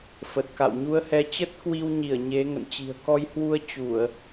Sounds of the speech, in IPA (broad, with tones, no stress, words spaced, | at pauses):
fə˨˩t̚ka̰˧˨wɲu˧ə̯hɛ˧ t͡ɕə˦˥t̚kwi˧wɲi˧˩ə̯ ɲe˨˦ ŋə̰˧˨nt͡ɕi̤˨˩ə̯ kɔ˧jhwu˧ə̯ t͡ɕu˧˩˨ə̯